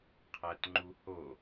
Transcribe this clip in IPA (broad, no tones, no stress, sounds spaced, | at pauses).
qʰ æ t ŋ͡ǃ u h o